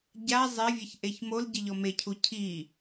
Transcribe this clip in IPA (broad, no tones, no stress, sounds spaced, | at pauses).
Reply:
ɟ a zˤ e vʲ ɛ ç ʔ e ç m o l ɟ ɘ ʎ ɔ m e cʰ u cʰ i